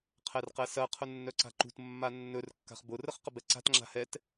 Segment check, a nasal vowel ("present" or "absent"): absent